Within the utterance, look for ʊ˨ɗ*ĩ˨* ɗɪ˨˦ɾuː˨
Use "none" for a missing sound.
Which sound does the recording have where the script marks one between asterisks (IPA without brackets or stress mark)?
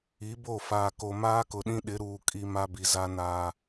ĩ˦